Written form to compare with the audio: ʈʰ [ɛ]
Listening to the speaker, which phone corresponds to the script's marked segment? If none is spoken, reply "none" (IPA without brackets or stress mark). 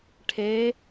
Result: e